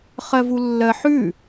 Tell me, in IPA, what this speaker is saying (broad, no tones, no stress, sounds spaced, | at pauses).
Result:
χ ɜ v u lː ɜ ħ ʉ